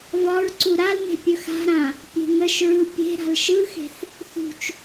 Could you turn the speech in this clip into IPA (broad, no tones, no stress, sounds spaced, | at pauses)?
v ɒ ɹ ǀ u ɾ a l n̪ e̤ pʲ ɵ x a̤ ɾ ã | pʲ e̤ ŋ ə ʃ ɹ ɯ pʲ e̤ ɾ a̤ l ʃ ɯ x e̤ θ | θ ṳ t͡ʃ